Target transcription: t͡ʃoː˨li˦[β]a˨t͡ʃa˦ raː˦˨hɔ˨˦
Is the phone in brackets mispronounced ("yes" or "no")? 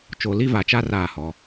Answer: yes